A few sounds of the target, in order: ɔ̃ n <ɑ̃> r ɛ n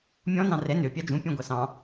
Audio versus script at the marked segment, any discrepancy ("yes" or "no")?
no